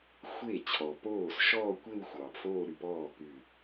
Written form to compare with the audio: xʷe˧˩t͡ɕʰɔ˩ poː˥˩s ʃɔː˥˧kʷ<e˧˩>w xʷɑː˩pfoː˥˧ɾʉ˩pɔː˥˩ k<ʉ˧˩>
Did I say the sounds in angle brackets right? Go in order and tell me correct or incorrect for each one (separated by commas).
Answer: incorrect, correct